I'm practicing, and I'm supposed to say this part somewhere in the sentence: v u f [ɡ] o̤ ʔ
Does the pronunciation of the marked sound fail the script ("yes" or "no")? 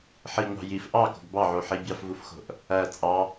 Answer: yes